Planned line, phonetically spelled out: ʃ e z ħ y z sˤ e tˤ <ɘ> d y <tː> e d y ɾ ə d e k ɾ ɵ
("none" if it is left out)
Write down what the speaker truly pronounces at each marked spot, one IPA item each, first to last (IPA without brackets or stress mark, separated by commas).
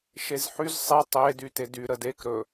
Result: e, t